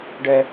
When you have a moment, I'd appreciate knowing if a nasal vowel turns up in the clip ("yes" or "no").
no